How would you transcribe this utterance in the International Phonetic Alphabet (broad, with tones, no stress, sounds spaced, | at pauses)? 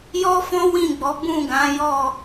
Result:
j ɔ˦ f ɔ̃˦ w ĩ˦˨ ɡ͡b ɔ˨˦ b ũ˦˨ ɡ ã˨˦ j ɔ˦˨